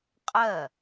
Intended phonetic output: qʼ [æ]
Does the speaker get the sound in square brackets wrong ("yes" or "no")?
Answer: yes